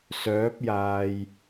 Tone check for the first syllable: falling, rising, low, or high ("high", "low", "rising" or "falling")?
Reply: rising